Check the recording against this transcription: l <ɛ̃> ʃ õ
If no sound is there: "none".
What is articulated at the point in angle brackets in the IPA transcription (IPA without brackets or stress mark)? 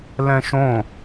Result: ɛ̃